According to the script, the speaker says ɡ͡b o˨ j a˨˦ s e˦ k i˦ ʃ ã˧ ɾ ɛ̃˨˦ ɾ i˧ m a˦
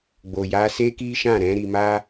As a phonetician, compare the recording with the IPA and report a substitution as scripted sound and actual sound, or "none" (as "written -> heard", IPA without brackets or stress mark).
ã˧ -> ã˦˨